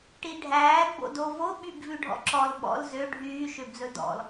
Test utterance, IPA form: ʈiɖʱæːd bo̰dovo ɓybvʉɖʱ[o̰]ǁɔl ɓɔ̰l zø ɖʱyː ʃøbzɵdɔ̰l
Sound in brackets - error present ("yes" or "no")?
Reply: yes